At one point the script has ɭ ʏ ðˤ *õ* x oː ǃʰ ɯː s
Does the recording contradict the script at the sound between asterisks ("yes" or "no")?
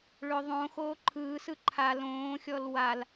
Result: no